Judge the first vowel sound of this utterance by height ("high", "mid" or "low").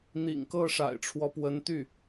high